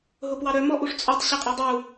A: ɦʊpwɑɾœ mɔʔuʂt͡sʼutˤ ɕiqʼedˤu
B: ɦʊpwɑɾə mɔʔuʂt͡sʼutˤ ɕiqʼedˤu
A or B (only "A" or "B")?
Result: A